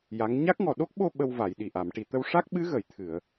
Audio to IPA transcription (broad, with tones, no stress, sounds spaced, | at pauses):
j a˧˥ ŋ ɲ a˦˥ k̚ ŋ ɔ˨˩ ɗ o˦˥ k̚ ɓ o˧ ɓ ə˧ w v a˨˩˨ j ɗ i˨˩ ʔ a˨˩˨ m ʈ i˨˩ t̪ ə˧ w ʂ a˦˥ k̚ ɓ ɨ˧˥ ɣ ə˨˩ j t̪ʰ ɨ˨˩˨ ə̯